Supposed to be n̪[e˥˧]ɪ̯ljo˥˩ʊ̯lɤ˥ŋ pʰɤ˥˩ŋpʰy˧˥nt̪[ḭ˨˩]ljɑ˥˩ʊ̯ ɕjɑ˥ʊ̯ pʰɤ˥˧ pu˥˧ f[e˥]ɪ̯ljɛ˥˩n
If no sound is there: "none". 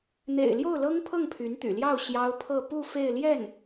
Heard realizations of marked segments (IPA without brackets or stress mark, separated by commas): ḛ˨˩, y̰˨˩, e˥˧